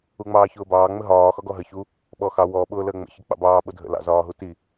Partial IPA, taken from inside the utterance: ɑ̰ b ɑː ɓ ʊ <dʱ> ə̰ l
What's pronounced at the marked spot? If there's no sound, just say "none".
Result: dʱ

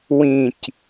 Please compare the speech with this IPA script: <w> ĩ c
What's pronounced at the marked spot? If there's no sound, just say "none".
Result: w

